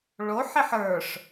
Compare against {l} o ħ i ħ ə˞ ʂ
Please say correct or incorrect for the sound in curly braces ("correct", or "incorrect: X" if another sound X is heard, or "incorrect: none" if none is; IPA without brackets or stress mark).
incorrect: ɭ